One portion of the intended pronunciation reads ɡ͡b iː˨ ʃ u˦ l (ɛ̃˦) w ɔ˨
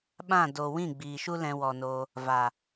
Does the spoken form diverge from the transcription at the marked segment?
yes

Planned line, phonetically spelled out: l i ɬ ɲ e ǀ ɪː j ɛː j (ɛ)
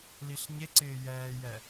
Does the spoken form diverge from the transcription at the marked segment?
no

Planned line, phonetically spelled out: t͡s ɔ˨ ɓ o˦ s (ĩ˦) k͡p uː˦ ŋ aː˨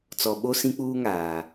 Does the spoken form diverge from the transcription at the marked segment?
no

